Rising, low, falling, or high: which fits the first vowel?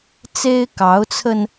high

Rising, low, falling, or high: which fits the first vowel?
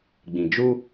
low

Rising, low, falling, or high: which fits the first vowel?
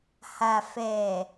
low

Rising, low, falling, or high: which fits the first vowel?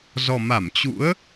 low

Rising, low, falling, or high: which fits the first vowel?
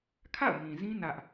falling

